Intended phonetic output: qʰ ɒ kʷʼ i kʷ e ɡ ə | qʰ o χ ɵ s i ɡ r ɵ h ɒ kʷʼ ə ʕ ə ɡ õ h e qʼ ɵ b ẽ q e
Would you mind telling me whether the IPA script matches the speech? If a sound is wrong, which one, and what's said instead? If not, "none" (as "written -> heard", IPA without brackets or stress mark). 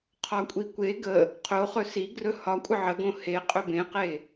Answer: none